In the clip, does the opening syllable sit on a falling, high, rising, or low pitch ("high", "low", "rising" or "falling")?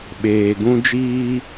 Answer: low